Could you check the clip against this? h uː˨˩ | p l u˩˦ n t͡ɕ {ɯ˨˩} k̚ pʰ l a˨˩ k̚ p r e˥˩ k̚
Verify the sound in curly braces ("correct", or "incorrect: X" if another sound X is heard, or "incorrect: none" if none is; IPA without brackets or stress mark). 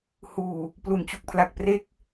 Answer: incorrect: u˨˩